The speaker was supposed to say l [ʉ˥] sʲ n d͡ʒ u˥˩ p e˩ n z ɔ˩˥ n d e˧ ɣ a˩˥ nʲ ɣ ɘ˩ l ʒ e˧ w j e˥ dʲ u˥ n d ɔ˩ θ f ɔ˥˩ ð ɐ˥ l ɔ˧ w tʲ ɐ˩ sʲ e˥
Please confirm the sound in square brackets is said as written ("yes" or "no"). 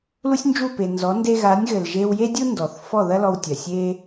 no